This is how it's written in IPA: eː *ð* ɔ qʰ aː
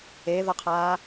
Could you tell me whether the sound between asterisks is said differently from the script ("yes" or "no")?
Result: no